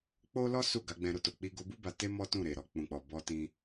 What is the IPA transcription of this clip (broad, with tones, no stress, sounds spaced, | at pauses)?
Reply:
k͡p o˦ l ɔ˦ s u˦˨ ɡ a˨˦ ɡ͡b ɛ̃˧ ɾ o˧ t o˨ k͡p i˧ ɡ o˧ b u˦ b a˧ t e˦ m ɔ˦ t ũ˦˨ ɾ e˨ ɾ ɔ˧ k͡p ũ˨ k͡p ɔ˨ b ɔ˧ t ĩ˧